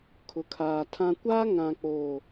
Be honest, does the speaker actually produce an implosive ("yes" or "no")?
no